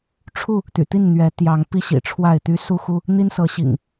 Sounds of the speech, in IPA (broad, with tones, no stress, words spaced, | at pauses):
ʈ͡ʂʰu˥˨ | t̪y̰˨˩ t̪i˥˨n n̪ɥɛ˨˦ t̪jɑ˨˦ŋpi˦ ɕḭ˨˩ʈ͡ʂʰwa˥˨ɪ̯t̪y˦ su˦xu˦ | n̪i˦nsɤ˨˦ɕḭ˨˩ŋ